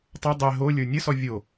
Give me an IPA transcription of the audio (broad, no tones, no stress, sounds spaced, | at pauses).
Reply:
tˤ ɐ dˤ ɛ ɦ o lʲ ə˞ nʲ ə s ɔ vʲ o